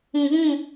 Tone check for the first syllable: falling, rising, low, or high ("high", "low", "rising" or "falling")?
low